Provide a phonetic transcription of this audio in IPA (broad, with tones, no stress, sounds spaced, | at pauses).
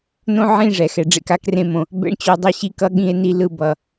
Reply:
n õ˦ ʕ ĩ˦˨ ʐ ɛ˨ x ɛ˨ ɖ͡ʐ ḛ˧ k a˦ k r ẽ˧ m õ˨ | b ɛ̰˧ ɳ t͡ɕ o˧ dˤ ɛ˧ ɕ i˦˨ k ʌ˧ ɠ ĩ˧ e̯ n i˧ l ɯ˧ b ʌ˨